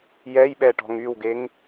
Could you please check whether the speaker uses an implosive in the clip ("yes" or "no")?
yes